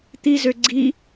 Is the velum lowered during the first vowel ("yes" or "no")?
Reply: no